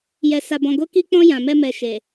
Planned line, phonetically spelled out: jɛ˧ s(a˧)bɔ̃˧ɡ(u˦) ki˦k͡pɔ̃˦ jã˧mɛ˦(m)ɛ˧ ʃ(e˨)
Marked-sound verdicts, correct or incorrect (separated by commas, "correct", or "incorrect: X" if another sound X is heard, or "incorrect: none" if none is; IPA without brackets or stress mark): correct, incorrect: o˦, correct, correct